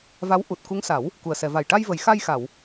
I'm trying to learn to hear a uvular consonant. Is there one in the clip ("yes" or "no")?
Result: no